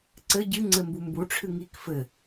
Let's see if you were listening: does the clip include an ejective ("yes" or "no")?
no